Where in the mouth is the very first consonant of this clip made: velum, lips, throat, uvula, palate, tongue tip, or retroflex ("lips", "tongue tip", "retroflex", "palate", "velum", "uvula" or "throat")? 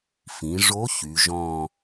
lips